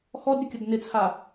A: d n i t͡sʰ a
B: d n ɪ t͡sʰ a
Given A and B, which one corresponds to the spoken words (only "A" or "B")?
B